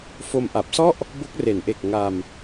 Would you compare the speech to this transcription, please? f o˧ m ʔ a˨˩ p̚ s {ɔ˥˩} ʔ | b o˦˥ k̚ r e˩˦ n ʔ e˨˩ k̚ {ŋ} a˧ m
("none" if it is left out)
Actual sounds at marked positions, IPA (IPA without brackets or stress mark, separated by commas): ɔ˥˩, ŋ